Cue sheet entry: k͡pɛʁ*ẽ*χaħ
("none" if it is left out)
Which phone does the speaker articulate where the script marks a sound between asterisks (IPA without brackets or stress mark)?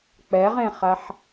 ẽ